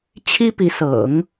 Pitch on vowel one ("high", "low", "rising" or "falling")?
high